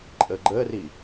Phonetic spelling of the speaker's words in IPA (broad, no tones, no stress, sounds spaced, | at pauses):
ǃʼ ə ɡ͡ǃ ə r i